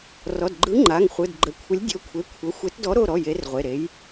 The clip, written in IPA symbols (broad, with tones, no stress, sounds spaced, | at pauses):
r ɔ˩˧˩ d ɡ͡ǃ ɯ˨˥ ŋ͡ǃ a˩˧˩ ŋ χʷ ɯ˩˧˩ d ɡ͡ǃ ə˩˧˩ kʷʰ ə˨˥ lʲ dʲ o˩˧˩ kʷʰ e˩˧˩ kʷʰ ə˩˧˩ xʷ e˨˥ t d ɔ˨˥ ɾ o˩˧˩ ɾ ɔ˩˧˩ j e˨˥ r ʁʷ e˩˧˩ ɾ e˨˥ j